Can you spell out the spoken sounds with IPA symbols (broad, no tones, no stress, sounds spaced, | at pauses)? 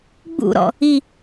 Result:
ɡ͡b ṵ ɾ ɔ̰ | i